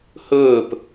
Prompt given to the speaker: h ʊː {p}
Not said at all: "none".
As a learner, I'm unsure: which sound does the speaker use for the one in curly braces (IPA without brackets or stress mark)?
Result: p